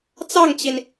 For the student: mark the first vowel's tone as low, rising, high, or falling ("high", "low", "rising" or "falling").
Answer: falling